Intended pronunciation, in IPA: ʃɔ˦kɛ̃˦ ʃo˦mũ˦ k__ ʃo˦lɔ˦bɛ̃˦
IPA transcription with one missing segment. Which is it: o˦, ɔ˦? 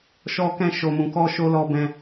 ɔ˦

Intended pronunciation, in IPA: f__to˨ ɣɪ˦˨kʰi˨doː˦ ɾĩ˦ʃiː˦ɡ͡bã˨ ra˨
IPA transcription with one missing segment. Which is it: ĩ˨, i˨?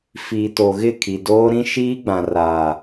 i˨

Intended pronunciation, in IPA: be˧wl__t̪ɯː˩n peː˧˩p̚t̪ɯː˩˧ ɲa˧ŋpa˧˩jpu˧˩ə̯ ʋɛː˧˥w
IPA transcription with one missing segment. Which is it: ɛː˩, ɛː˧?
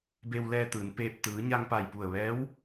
ɛː˧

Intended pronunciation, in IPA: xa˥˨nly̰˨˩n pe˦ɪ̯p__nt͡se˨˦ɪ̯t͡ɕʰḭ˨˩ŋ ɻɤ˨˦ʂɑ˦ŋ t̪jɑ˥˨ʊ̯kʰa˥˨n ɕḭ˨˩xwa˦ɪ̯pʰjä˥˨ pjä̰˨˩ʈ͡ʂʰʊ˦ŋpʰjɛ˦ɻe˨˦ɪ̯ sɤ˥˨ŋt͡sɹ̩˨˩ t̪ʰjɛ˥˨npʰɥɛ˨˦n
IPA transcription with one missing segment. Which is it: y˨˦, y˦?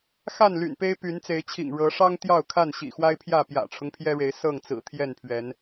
y˨˦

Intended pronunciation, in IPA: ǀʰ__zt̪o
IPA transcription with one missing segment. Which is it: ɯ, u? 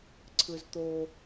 ɯ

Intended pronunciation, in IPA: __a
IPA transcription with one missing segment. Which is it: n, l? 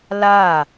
l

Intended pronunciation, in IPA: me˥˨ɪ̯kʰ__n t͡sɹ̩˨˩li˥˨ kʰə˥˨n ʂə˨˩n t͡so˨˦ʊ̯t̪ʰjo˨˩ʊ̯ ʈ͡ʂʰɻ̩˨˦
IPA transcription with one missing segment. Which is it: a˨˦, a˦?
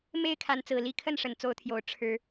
a˨˦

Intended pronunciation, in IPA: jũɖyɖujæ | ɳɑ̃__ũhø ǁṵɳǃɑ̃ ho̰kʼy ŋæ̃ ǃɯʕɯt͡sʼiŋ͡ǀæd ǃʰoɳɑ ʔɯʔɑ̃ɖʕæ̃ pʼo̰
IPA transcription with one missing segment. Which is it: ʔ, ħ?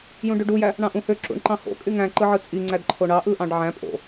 ʔ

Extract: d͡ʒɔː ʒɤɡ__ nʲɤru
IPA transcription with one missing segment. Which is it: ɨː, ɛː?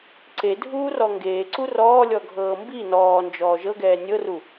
ɛː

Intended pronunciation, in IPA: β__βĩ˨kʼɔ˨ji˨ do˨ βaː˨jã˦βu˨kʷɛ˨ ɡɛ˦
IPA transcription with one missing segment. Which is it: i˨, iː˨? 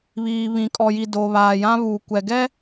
iː˨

